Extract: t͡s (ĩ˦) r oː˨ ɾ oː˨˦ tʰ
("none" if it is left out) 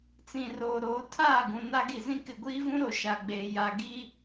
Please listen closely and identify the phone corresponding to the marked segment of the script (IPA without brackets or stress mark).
ĩ˨